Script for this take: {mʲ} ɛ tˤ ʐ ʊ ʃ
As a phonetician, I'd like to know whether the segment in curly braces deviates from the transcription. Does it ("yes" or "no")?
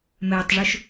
yes